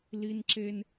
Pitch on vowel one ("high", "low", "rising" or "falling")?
high